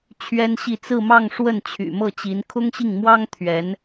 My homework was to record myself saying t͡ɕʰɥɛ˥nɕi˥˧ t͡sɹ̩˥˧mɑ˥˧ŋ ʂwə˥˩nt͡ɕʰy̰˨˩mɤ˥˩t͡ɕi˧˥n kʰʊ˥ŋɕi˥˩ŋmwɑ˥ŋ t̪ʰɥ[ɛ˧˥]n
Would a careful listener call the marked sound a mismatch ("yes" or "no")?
no